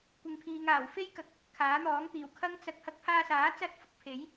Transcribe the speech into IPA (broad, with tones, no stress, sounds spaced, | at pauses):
kʷ ɪ˨ ŋ pʰ iː˨ ŋ aː˨˩ w f e˥ j k ɐ˨ k̚ | kʰ aː˨˥ n̪ ɔː˨˥ ŋ t̪ iː˨˩ w kʰ ɐ˥ ŋ t͡s ɐ˧ k̚ h ɐ˧ k̚ pʰ aː˧ s aː˨˥ t͡s ɐ˥ t̚ f ʊ˧ k̚ pʰ e˨˥ j